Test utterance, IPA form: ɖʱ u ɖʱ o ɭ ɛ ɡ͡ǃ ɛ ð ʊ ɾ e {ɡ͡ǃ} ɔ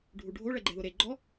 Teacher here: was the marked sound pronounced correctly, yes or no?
yes